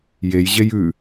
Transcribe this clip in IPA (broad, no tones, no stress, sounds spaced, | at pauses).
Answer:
j e j ʑ e j ʉ